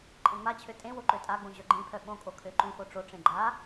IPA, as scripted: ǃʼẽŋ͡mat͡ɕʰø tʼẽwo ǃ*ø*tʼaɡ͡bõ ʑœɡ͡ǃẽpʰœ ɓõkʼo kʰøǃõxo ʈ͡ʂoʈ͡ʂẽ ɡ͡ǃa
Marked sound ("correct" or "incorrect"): correct